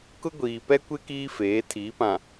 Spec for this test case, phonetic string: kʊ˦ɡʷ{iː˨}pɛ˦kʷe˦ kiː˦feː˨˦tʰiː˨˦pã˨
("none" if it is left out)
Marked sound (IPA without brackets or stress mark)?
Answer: iː˨